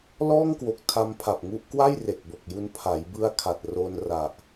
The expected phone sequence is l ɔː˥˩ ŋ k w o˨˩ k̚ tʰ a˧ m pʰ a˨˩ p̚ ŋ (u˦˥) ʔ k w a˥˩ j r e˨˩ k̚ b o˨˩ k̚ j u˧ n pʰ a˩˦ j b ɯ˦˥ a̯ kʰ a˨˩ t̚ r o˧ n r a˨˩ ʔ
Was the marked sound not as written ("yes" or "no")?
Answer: no